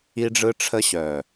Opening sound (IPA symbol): i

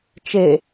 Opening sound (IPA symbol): t͡ʃ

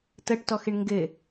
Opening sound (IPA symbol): t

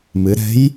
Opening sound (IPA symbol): m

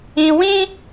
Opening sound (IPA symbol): ĩ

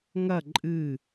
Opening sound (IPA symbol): ŋ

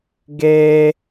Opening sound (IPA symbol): ɡ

